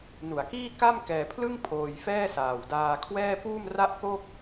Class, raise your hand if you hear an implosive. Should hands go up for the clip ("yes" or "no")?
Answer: no